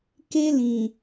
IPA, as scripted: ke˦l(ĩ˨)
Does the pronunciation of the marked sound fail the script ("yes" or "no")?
no